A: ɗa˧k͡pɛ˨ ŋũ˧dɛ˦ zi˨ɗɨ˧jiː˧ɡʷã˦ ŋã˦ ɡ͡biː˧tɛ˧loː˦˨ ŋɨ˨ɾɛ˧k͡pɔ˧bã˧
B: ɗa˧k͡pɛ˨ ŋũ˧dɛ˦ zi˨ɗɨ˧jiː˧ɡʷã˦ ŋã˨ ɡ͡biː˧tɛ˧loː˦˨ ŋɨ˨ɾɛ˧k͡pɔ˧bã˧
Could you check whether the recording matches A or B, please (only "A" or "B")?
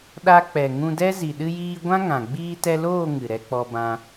B